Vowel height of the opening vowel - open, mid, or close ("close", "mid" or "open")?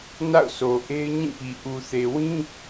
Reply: open